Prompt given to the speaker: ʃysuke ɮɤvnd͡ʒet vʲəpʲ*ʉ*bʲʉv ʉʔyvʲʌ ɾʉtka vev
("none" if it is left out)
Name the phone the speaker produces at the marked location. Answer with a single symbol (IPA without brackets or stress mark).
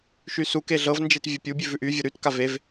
u